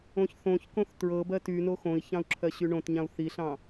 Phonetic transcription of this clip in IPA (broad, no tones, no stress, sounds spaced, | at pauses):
õ ç θ õ ç k õ θ t ɹ ɤ b ɜ t y n o x õ i̯ ç ɑ̃ u̯ ǁʰ ɜ ɕ y ɳ õ t ɲ ɑ̃ u̯ θ i ɬ ɑ̃